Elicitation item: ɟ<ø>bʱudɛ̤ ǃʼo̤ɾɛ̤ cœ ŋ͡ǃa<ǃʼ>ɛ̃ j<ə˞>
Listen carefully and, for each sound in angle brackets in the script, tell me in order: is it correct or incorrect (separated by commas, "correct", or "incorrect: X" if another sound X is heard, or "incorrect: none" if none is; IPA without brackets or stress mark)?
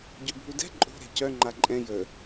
correct, correct, incorrect: ə